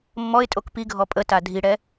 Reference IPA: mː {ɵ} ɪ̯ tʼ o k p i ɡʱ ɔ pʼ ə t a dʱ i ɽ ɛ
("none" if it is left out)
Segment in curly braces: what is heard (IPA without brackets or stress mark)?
ɔ